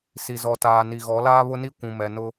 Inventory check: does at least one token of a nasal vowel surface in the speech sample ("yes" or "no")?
yes